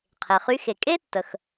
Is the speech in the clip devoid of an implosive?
yes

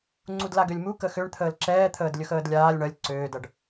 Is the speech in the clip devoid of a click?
no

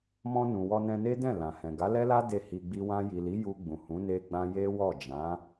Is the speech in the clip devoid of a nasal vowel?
no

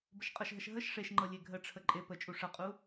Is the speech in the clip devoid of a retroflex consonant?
no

